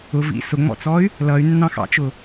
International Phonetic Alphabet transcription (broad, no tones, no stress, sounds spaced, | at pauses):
ʊ v ḭ s ʊ ŋ͡m ɔ̰ t͡s ɔ y̯ | l ʌ y̯ nː ɑ̃ x ɑ̰ t͡ʃ ʊ